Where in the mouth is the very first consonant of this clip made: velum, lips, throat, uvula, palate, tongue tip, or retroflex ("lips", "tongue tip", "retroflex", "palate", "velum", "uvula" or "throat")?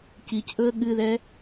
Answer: palate